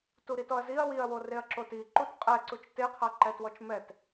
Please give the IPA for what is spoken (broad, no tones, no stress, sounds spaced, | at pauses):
t u ɾ i t ɔ ɐ̯ z i ɐ̯ w i ɐ̯ w o r e ɐ̯ ǁ o t i ǃ u t qʼ ɛ ǀ u t͡ʃ t e qʰ a ǃ ɛ t w ɔ t͡ʃ m ɛ t